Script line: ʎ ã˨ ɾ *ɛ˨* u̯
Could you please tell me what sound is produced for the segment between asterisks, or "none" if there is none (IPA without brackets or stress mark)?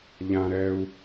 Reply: ɛ˨